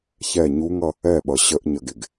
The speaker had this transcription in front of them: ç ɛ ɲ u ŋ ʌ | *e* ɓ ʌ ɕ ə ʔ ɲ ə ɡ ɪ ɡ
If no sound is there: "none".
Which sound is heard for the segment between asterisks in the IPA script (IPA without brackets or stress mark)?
ɛ